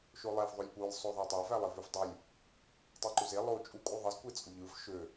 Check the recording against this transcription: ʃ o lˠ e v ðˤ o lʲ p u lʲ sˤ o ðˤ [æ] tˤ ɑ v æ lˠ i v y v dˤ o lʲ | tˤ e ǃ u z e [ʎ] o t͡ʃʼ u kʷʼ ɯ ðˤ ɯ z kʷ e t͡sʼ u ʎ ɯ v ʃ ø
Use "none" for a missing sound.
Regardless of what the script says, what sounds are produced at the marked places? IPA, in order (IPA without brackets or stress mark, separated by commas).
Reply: æ, lˠ